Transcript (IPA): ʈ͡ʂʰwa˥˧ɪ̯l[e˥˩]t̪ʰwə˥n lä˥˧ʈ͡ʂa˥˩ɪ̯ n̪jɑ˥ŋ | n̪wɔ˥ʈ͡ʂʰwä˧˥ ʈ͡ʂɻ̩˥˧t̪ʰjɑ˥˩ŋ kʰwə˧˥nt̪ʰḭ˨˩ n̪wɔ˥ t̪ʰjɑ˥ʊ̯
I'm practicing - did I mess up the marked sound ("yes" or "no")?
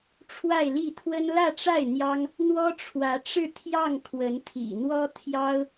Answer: yes